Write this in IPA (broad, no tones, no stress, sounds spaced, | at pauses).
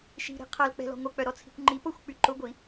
ʃ i̤ ɾ i̤ qʰ ɐ l k͡p ɛ̤ l ɔ̤ ŋʷ ɐ k͡p œ ɾ ɔ t͡sʰ i̤ kʷ ŋ͡ǃ i p o xʷ k͡p y ǃ ʊ ɡʷ i